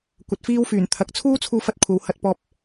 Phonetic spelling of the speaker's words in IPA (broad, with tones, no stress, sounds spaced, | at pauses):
kʷ ɐ˨˥ t̚ f iː˥ w f yː˨˩ n t̪ʰ ɐ˨˥ k̚ t͡sʰ uː˥ t͡sʰ uː˧ f ɐ˧ t̚ kʷʰ ɐ˨˧ w h ɐ˧ t̚ p ɔː˧ p̚